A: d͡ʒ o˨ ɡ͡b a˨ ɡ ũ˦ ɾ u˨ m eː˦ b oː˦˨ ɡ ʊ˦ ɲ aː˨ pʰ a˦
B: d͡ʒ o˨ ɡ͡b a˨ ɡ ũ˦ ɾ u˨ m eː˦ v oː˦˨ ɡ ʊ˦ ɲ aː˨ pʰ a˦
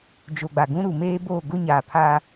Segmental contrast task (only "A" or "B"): A